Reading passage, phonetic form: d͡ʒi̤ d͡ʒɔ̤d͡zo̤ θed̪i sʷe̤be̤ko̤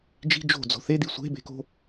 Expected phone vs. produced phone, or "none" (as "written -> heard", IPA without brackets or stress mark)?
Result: ɔ̤ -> o̤